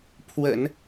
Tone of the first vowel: low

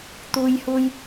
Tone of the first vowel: high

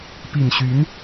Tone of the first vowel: low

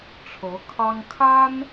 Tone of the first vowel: rising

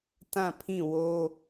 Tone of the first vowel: falling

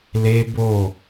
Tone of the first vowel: high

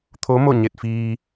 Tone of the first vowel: rising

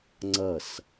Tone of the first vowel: falling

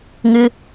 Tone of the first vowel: high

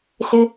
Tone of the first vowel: high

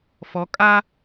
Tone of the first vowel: rising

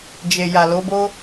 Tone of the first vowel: low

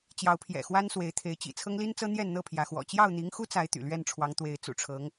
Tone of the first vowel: rising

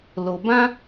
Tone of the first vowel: low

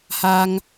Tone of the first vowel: high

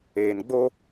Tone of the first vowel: low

